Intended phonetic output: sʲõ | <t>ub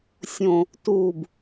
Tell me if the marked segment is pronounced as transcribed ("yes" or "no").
yes